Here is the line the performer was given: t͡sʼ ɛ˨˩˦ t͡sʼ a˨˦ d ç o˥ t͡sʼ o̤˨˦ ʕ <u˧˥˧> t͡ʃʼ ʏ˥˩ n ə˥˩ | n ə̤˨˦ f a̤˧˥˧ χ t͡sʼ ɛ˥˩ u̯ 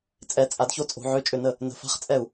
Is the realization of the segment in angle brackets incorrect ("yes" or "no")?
yes